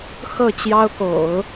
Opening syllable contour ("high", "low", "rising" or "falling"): falling